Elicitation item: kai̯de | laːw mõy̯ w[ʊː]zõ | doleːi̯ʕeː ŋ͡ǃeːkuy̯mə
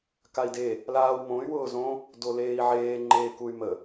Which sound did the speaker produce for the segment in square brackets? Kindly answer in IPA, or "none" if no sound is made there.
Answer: ʊː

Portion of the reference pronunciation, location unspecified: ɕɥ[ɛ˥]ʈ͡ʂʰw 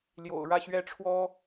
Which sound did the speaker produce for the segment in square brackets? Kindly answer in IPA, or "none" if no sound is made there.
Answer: ɛ˥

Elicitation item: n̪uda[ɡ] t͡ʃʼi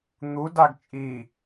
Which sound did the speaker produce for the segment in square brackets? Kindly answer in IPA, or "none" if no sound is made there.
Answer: ɡ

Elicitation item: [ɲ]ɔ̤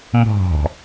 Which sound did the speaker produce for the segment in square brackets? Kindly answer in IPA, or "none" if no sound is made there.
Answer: m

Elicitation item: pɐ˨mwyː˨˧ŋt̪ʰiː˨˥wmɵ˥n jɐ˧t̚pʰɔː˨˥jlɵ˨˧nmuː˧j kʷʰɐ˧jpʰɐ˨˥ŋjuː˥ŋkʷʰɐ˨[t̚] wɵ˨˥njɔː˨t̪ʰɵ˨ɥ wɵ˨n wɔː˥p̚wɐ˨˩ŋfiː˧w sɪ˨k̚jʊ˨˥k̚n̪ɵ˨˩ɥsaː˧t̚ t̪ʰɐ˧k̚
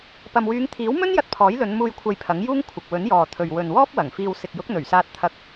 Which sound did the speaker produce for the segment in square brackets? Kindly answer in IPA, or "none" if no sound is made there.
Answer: k̚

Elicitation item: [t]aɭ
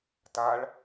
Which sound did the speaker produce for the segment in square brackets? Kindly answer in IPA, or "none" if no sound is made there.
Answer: t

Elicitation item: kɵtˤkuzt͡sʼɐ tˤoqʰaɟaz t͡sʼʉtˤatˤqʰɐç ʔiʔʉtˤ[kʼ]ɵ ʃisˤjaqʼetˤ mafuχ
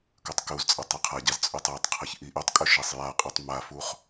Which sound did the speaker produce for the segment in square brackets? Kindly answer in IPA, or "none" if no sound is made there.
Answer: kʼ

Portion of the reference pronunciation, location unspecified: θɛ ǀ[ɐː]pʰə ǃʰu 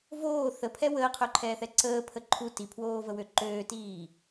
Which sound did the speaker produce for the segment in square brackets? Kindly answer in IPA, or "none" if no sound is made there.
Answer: əː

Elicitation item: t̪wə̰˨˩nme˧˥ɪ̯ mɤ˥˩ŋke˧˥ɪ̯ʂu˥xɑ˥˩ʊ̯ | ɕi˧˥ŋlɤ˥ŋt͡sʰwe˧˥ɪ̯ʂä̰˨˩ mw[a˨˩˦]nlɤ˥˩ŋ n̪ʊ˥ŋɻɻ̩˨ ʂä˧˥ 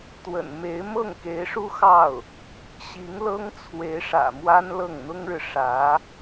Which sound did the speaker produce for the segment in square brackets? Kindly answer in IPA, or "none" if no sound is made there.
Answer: a˥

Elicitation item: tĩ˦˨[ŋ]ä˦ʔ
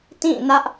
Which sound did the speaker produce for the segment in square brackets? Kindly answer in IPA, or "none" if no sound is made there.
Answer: n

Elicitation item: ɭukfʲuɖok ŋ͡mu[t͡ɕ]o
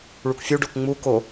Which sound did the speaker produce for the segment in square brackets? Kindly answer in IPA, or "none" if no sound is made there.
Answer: k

